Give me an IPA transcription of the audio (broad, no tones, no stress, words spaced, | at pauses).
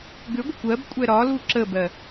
ɡʏɡʷəkʷ ɜbkʷʼɛ ɾɒlu ǁəbɜ